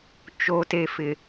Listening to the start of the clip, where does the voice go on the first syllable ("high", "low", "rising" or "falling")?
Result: low